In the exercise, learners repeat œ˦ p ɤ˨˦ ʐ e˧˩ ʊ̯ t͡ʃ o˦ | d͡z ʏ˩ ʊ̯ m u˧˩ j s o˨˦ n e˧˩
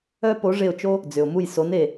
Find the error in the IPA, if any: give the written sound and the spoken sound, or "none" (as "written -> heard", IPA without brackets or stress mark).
ɤ˨˦ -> o˨˦